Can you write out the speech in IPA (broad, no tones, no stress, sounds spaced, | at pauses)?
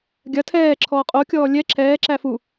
ɡʲ ɐ tʰ ɛː ǁʰ ɔː qʼ o kʲ ɔː lʲ ɛ ǁʰ ɛː ǁ æ f u